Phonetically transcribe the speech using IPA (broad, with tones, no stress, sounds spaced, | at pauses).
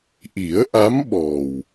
ʔ i˨˩˦ ə̯ ʔ a˧˥ m ɓ ɔ˨˩ w